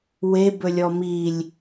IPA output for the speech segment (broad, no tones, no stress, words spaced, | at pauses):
webɵlʲɔ milʲ